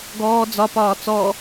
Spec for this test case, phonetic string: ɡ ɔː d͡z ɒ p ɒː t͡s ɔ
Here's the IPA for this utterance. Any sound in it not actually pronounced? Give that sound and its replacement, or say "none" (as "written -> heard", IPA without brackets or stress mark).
none